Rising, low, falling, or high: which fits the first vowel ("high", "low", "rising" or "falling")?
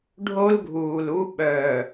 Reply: high